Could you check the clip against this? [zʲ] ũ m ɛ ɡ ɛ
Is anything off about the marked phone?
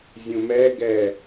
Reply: no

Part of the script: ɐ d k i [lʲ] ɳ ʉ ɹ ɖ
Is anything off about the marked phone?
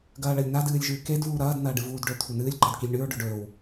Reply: no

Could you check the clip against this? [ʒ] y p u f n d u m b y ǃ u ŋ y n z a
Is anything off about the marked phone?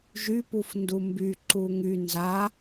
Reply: no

